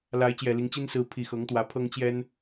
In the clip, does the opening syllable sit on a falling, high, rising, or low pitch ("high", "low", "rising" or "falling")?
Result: rising